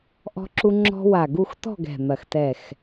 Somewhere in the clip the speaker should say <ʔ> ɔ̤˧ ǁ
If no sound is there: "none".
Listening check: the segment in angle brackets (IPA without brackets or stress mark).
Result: ʔ